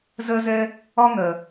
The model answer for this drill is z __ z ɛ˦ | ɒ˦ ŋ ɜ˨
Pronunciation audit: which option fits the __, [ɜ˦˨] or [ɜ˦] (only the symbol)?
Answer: ɜ˦